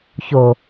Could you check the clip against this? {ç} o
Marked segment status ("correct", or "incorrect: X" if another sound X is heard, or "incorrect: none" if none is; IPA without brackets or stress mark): correct